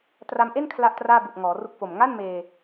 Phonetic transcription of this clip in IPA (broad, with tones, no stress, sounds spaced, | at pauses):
t r a˧ m ʔ e˥˩ n kʰ l a˥˩ ʔ t r aː˥˩ b u˨˩ ʔ ŋ ɔː˩˦ r u˥˩ k̚ f o˨˩ m ŋ a˥˩ n m eː˧